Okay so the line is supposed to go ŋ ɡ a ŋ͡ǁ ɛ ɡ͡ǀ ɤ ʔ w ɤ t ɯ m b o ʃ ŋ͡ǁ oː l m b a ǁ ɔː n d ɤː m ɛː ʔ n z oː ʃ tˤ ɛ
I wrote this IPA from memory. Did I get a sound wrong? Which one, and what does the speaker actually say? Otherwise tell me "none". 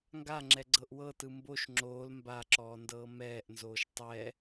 none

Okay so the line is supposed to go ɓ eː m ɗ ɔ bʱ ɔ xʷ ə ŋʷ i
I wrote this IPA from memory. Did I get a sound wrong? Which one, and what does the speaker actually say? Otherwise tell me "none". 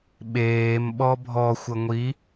ɗ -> ɓ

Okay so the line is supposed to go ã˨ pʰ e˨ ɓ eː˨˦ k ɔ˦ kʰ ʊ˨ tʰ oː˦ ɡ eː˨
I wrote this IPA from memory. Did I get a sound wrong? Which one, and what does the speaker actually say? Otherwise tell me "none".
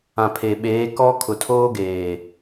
none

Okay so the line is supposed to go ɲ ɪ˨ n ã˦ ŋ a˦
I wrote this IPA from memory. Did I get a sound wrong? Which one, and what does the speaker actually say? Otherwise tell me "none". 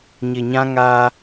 n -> ɲ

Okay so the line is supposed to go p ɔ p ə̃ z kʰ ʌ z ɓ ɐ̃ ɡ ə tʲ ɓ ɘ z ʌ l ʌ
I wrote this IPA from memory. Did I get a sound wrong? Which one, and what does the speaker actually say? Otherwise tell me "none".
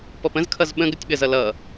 ɐ̃ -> ə̃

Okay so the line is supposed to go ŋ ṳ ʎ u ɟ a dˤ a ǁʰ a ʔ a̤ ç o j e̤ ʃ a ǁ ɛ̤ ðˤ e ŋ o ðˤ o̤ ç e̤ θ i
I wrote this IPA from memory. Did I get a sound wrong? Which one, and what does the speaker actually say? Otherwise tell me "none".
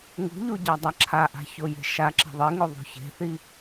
ɛ̤ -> e̤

